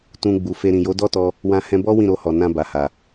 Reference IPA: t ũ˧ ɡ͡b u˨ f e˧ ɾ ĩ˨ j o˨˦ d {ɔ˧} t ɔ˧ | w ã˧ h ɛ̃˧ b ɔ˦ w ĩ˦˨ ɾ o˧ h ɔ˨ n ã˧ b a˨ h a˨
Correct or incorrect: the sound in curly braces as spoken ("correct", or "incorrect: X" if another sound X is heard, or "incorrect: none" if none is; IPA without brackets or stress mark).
incorrect: ɔ˦